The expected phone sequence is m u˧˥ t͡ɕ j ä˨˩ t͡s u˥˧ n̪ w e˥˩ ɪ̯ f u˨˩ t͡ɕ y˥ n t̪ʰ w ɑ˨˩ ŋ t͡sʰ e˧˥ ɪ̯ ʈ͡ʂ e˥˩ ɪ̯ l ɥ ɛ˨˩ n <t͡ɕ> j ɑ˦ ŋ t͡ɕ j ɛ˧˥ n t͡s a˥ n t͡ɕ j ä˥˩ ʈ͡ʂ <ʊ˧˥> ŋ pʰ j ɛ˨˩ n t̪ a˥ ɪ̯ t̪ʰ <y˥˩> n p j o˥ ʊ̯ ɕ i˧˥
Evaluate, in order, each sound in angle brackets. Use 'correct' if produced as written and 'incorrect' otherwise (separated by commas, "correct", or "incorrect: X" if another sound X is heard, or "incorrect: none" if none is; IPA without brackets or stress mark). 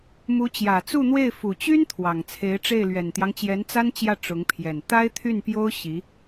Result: incorrect: t̪, correct, correct